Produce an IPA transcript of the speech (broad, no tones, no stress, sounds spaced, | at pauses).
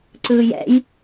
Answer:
ǀ ɯː j ɛ̰ j